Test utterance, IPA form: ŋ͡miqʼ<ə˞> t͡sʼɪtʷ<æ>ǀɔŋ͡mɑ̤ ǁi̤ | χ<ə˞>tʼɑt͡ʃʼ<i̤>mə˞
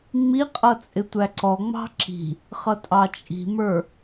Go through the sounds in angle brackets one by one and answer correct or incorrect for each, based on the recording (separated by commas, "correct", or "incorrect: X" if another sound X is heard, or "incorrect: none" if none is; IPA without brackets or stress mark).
incorrect: ʌ, correct, incorrect: ʌ, correct